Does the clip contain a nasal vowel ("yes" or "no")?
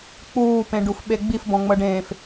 yes